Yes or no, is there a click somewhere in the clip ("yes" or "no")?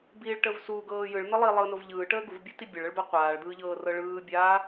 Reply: no